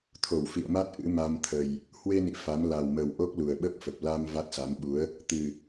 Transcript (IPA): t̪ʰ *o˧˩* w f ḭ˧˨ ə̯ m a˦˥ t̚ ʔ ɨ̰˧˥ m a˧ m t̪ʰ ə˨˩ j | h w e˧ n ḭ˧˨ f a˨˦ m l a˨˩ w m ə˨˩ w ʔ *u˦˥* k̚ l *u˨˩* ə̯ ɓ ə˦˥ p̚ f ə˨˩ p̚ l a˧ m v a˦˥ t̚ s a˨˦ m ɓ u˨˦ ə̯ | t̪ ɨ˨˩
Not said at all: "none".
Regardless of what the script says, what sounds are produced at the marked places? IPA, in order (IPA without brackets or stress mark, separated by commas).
o˧˩, o˦˥, u˨˩